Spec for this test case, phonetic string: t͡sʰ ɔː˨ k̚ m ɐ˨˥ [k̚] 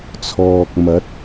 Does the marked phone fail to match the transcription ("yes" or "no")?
yes